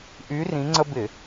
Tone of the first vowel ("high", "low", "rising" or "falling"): rising